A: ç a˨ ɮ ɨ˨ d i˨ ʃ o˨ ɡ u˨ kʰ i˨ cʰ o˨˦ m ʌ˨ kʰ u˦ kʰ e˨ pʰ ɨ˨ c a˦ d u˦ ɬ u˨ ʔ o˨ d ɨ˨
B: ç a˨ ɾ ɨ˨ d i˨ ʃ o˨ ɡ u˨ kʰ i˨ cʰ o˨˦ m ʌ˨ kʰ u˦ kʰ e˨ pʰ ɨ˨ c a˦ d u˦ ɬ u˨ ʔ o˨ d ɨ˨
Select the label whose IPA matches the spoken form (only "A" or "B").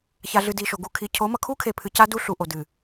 A